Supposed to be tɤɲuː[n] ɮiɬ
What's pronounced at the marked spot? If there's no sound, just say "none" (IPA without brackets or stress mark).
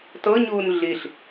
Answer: n